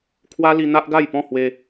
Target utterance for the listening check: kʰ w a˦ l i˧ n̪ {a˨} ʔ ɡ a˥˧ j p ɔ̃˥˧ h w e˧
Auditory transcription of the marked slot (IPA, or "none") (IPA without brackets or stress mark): a˦